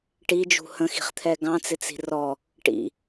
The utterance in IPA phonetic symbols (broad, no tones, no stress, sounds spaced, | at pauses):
ʈ i d͡ʒ ṳ h ə̃ x i̤ χ t̪ʰ ɛ ɡ ɑ̃ t͡s ɪ t͡s i̤ r ɔ | ʈ ḭ